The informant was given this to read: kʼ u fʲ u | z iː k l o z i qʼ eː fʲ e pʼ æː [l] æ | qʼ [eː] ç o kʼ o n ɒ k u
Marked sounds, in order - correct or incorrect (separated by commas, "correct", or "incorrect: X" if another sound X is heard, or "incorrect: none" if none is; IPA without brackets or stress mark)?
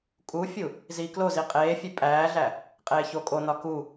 incorrect: ɮ, correct